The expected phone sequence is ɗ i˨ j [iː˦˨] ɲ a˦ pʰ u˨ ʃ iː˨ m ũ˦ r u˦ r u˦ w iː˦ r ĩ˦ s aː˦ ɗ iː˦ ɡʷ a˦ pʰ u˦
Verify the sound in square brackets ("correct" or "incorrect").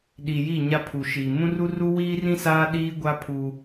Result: incorrect